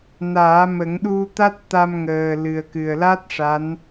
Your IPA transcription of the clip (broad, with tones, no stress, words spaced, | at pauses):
naː˨˩˦mə˨˩˦ŋɗu˧t̪a˦˥t̚ t̪a˧mŋəː˨˩ lɨ˨˩ə̯kɨ˨˩ə̯la˦˥t̚ ʂa˧˥n